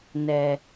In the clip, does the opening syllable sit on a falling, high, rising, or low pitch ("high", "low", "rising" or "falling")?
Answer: low